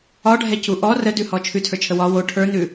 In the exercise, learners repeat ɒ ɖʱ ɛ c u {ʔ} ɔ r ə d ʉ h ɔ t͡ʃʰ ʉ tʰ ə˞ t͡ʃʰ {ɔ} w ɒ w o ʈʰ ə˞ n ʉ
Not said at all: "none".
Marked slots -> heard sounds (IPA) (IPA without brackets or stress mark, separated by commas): ʔ, ə